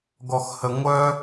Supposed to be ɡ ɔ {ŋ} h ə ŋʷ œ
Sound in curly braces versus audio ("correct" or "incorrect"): incorrect